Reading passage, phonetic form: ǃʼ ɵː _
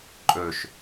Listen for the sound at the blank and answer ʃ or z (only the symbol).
ʃ